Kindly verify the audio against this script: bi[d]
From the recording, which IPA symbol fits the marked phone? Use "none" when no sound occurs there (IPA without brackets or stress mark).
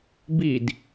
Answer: d